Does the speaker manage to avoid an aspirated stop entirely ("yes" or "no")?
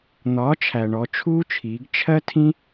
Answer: no